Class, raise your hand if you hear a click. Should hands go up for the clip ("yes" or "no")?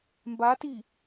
no